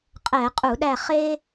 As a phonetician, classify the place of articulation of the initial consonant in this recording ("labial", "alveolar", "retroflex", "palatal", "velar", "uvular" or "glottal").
uvular